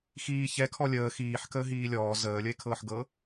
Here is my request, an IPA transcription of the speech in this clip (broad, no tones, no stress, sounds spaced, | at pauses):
x iː ç ɛ kʰ ɔ lʲ əː x iː ħ k əː ɦ iː lʲ ɔː z əː lʲ ə e̯ kʰ ɤː ħ ɡ ɤ